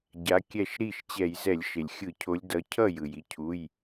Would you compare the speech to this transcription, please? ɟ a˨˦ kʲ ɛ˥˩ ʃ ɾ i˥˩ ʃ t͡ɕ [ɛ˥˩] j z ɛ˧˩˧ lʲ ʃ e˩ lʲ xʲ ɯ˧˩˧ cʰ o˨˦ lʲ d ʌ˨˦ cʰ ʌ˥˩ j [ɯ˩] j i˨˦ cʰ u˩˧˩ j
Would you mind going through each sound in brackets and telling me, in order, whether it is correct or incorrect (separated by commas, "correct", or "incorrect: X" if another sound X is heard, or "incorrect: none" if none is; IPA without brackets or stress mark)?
incorrect: ɛ˧˩˧, correct